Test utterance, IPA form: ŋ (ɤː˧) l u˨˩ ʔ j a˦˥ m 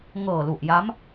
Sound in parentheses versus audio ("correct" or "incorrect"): incorrect